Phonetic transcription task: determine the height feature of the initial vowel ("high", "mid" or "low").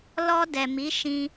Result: mid